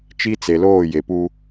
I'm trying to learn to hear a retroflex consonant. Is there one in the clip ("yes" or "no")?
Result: no